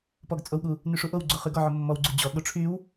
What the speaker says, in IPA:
p ɔ ɡ t͡sʼ o w ɠ u | n y ʂ u ʔ o w ɡ͡ǀ o χ y ɡ ɔ ʕ o mː ɔ w ɡ͡ǀ u d͡ʑ ɔ ɠ o ʈ͡ʂʰ y w

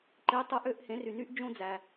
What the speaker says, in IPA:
ǃ e˨˦ tˤ ɯ˨˦ ʔ ø˨˦ ʔ h ẽ˨˦ r y˨ n y˦ ʔ d͡ʒ õ˦ d͡z æ˨

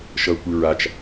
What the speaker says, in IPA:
ʃ ʌ kʷ ɨ ɹ a t͡ʃ

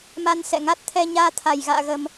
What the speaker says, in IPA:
m a˧ n s ɛ̰˧˨ ŋ a˦˥ t̚ t̪ʰ ɛ˧ ɲ aː˧ t̪ʰ a˧˩ j ɣ a̰ː˧˨ ɣ ə˨˩ m

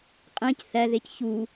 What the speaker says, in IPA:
qʼ ẽ c θ æ ð e c ç u

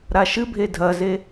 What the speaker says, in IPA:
ɾ a ʃ ɨ bʱ e dʱ ɐ z e

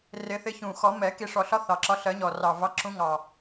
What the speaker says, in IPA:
r ɪ˨˩˦ θ ɪ˨˦ ç ũ˨˩ x ɔ˨˩˦ m ɛ˨˩˦ k i˨˩ ʂ ɔ˨˩ ɬ ɒ˨˦ θ ɑ˨˩ ǁ ɒ˨˦ ɬ ɜ˨˩˦ ɲ ɔ˨˩ r ɑ˨˩ v ɑ˨˦ ǁ ũ˨˦ ŋ ɑ˨˩

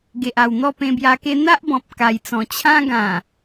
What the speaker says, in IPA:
ɡ e˨ ʔ a˨˩ w n̪ ɔ˥˧ p ẽ˧ b j a˧ k e˦ n̪ a˦ ʔ b ɔ̃˨ p̚ k a˨˩ j t͡s ɔ̃˨˩ t͡ɕʰ ã˦ ɡ ã˨˩

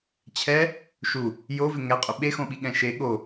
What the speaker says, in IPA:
t͡ɕʰ ɛ | ʃ u | j o v ɪ ŋ ɛ qʼ ʏ ɓ e x õ ɓ i ɠ ɛ̃ ʃ e ɠ o

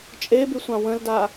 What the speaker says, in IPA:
t͡ʃʼ e b y sʷ ɑ̃ w ə̃ l d a

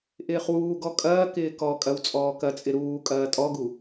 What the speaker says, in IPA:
ʔ ɪː χ w uː ɡ ɔ kʼ ɐː k ɪː k ɔ kʼ ɐ w t͡sʼ ɔː k ɐ t͡sʼ ɪ ɾ uː kʼ ɐː tʼ ɔ ɡ u

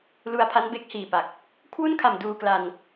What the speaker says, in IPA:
l u˧ a̯ pʰ a˦˥ n b e˦˥ k̚ h iː˨˩ p a˨˩ k̚ | kʰ w u˥˩ n kʰ a˨˩ m d uː˧ k l a˧ n

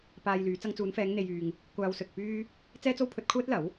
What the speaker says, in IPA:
p aː˧ j l yː˨˧ t͡s ɐ˧ ŋ t͡s uː˨˧ n f ɛː˨˧ ŋ n̪ e˧ j yː˧ ŋ | kʷ aː˧ w s ɵ˨ t̚ p yː˥ | t͡s ɛː˥ t͡s o˥ w pʰ ɵ˧ t̚ kʷʰ ɛː˥ t̚ l ɐ˨˥ w

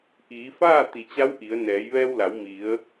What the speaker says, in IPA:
ʔ iː˩˧ f aː˥˨ t̪ i˩ t͡ɕ a˧˥ w ʔ i˩˧ ə̯ n ɛː˩˧ j ʋ ɛː˧ w l a˩˧ w m i˩˧ ə̯

